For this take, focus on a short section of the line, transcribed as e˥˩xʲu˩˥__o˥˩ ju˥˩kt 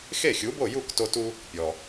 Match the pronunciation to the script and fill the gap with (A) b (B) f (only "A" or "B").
A